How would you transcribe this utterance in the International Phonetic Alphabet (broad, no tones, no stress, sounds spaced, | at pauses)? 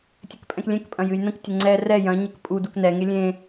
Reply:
tʲ ɘ k pʼ ɛ̃ k lʲ ɛ̃ k pʼ ɐ̃ j ɨ j n ə̃ k tʲ ə ŋ͡ǀ ɛ r ɛ j ɐ̃ ɲ ə k pʼ u d u k n ɛ ŋ e lʲ ẽ